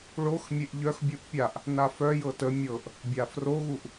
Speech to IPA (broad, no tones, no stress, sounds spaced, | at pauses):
ɭ o x mʲ e ʔ ʎ œ x bʲ u ʔ pʲ a ʔ | n a f œ j ɤ t ə mʲ ɤ ʔ | bʲ a f r o ɣ u ʔ